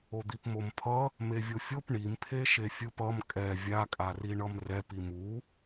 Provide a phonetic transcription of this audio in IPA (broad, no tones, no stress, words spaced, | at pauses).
od̪ipmompʰʌ | mevʲofʲop ɳimpʰe ʃefʲɯp ʌm kʼɛ vʲakʼari ɳʌmrɛp imu